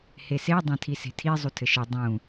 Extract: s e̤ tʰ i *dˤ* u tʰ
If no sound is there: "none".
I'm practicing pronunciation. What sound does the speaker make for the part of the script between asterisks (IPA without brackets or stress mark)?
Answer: zˤ